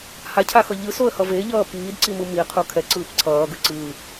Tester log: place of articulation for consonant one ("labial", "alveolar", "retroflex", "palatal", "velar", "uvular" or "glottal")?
glottal